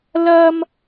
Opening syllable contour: high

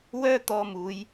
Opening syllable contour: high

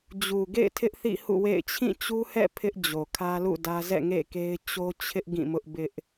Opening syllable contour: low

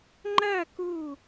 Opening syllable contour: falling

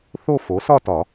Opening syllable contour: falling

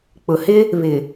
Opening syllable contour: low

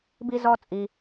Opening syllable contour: high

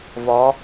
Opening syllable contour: rising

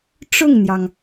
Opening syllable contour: falling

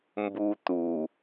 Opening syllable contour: high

